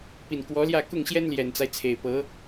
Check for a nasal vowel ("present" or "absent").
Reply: absent